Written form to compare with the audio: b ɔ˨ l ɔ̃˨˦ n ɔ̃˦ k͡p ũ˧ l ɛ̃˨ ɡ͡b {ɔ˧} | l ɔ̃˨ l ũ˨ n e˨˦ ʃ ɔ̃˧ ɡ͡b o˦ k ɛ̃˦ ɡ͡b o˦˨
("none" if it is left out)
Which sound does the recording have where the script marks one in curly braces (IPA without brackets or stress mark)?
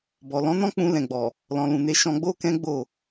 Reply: ɔ˨